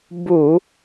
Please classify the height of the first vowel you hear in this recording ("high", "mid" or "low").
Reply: high